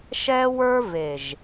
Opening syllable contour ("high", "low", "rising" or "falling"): high